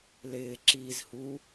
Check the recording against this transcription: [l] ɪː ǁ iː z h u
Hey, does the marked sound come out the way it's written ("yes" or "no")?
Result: yes